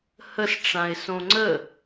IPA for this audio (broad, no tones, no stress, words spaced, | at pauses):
həsʈ͡ʂãɪ̯ sõŋ͡ǀə